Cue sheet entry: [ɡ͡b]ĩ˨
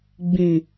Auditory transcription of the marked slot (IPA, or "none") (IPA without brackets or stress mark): ɡ͡b